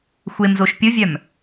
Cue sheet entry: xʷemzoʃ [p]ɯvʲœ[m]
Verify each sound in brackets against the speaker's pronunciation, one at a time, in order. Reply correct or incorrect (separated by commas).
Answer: incorrect, correct